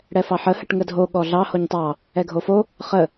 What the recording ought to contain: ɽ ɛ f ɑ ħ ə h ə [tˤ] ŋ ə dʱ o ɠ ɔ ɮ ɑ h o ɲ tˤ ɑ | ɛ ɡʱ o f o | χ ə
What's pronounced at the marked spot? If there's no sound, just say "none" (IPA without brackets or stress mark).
ʈ